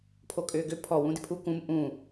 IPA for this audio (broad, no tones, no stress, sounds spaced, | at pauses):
pʰ o kʼ ʏː ɡ ʏ pʰ ɔ w ũ d ɪ pʰ u k ũ m ʔ ũ